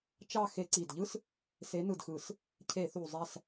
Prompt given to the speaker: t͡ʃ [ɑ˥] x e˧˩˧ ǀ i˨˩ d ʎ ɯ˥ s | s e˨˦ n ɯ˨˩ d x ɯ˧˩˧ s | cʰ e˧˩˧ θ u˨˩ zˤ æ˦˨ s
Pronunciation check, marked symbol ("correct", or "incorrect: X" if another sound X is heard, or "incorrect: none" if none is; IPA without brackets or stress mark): incorrect: ɑ˦˨